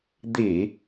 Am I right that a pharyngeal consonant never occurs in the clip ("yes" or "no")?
yes